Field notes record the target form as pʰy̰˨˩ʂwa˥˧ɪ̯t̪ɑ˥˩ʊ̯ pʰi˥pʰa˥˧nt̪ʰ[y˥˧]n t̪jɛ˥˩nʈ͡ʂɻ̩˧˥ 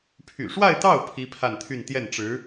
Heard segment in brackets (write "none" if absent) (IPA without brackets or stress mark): y˥˧